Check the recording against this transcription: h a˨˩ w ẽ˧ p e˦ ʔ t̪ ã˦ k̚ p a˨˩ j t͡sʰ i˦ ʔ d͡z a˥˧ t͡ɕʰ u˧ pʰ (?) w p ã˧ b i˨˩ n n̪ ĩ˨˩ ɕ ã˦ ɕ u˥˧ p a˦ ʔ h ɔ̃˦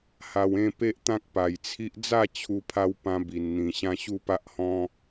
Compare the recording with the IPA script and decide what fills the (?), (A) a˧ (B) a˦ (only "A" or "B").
A